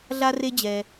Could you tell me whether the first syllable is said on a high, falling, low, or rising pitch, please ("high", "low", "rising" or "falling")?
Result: high